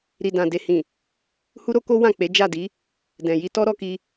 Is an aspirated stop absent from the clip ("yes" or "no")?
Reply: yes